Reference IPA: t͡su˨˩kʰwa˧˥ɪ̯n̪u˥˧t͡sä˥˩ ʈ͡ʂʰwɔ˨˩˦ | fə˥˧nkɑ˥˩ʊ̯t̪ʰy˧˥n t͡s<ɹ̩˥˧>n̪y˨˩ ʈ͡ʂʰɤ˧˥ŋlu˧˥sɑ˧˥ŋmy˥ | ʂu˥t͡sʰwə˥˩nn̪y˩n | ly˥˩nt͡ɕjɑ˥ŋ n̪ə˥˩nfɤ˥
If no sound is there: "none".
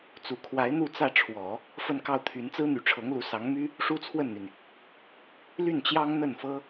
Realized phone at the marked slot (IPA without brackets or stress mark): ɹ̩˥